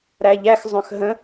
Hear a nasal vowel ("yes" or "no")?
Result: yes